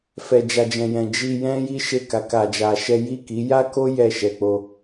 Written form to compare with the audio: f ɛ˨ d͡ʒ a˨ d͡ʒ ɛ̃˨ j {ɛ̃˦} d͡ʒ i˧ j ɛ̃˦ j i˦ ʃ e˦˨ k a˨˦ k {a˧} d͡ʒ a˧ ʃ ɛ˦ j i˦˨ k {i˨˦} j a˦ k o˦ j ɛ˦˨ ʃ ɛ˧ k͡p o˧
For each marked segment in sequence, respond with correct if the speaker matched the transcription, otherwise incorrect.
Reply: incorrect, correct, correct

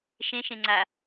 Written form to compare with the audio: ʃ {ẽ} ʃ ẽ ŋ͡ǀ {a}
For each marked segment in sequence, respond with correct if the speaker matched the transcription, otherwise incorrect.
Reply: correct, correct

